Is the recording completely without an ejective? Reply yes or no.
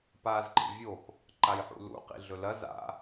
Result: yes